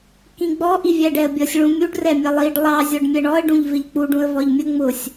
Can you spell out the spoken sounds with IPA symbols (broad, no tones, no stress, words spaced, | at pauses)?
kĩɡ͡bɔ ʔivʲæɖɛə̯bʲʌsʲ ɭũmʲuɖ rɛmʲʌlˠiɖ lˠɑ zʲɔɖmʲɜɳɔə̯ ɖũʎvɪʎk͡puɖ ũə̯vɒʎmʲə ŋ͡mʊsʲ